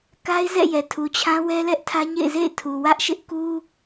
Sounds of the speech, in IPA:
k a˦ ɪ̯ z ɛ̰˦˨ j ɛ˨ tʰ u˨ t͡ɕʰ ã˦ w ɛ˦ l ɛ˦ ʔ tʰ ä˦ ɲ ḛ˦˨ ɪ̯ z ḛ˦˨ ɪ̯ tʰ u˨ w ä˦ ʔ ʃ ɪ˦ ʔ k u˦

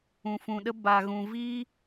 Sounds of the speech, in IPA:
ũ˨ f ũ˨ ɗ ə˦ b a˨ ɣ ũ˨ v i˦

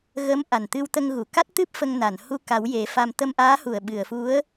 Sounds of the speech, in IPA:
ɣ ə˧˥ m ʔ a˨˩ n t̪ ɨ˧ w t̪ ə˧ ŋ ɣ u˨˩˨ k a˦˥ t̚ t̪ ɨ˦˥ p̚ f ə˧ ŋ n a˨˩˨ n h u˧ k a˨˩˦ w j e˨˩˦ f a˧ m t̪ ə˧ m ʔ aː˧˥ h u˨˩ ə̯ ɓ ɨ˨˩˨ ə̯ f u˧˥ ə̯

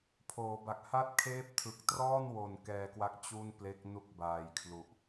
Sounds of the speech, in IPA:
pʰ oː˩˦ b a˨˩ k̚ h a˥˩ t̚ kʰ eː˦˥ p̚ tʰ ɯ˨˩ k̚ t r ɔː˥˩ n w o˨˩ n k ɛː˧ k w a˦˥ k̚ t͡ɕ u˥˩ n p l e˦˥ k̚ n u˦˥ k̚ b aː˨˩ j kʰ l u˨˩ ʔ

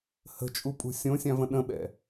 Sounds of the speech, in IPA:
h ə̤ t͡ʃʼ u pʼ ṳ sʲ õ sʲ ã v ə̃ ɗ ə̃ ɓ ɛ̰

